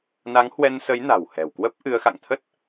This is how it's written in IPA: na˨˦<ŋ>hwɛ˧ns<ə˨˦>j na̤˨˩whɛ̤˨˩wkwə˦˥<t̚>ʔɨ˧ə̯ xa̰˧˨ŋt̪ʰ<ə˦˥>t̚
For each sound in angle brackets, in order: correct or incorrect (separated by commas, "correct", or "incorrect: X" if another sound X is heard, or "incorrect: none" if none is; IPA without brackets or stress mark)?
correct, correct, incorrect: p̚, correct